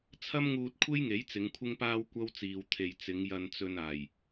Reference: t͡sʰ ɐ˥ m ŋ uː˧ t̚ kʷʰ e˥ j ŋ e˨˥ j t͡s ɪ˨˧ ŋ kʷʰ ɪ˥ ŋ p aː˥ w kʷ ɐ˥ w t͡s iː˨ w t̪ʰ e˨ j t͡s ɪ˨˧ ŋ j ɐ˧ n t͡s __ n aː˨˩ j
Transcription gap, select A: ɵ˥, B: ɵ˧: B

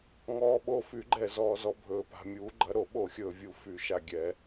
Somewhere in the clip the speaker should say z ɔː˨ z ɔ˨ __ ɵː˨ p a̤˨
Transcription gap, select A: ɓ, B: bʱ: B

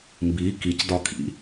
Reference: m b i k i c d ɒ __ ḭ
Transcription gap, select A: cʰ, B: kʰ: B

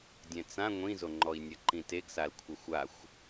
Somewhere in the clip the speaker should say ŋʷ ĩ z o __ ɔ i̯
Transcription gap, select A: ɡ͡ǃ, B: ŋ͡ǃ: B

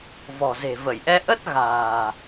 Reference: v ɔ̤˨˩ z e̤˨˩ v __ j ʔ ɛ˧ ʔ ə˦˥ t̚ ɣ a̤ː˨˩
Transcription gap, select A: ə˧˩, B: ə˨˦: A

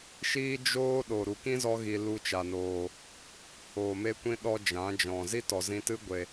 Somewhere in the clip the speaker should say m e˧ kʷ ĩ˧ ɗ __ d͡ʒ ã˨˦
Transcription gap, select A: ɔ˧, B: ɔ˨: A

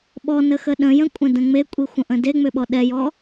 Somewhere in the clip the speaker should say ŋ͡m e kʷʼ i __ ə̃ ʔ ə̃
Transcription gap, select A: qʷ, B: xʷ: B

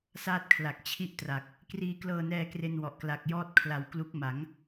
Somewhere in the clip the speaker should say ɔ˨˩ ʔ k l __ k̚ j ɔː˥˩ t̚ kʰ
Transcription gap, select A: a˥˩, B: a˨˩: B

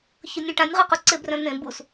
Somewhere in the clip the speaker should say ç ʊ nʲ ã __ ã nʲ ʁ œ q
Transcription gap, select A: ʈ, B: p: A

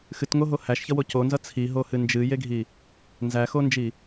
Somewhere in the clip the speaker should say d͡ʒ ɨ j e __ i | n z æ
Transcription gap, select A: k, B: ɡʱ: B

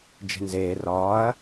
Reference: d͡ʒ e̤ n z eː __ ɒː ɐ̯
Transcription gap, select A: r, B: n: A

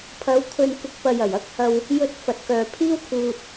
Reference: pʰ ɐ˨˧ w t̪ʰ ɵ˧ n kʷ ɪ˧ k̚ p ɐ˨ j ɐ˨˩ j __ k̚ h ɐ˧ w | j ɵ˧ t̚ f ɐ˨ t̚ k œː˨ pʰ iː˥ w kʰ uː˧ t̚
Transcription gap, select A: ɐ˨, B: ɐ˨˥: B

